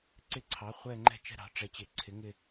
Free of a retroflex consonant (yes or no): no